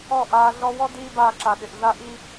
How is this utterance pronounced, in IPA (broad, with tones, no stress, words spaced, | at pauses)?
ɔ˦˨ ʔaː˧ ɮɔ˧wɔ˦ diː˦baː˧ǁa˨ ɗɪ˨ʔɮa˦ʔi˦